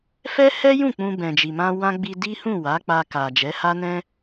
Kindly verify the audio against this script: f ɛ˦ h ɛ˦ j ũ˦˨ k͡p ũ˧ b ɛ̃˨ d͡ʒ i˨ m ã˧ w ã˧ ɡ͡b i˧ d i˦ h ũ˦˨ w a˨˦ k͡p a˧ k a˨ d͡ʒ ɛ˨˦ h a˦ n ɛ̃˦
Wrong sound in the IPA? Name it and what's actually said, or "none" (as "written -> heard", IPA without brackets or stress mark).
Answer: none